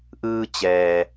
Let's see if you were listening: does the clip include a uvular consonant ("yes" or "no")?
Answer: no